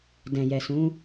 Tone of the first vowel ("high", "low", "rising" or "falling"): low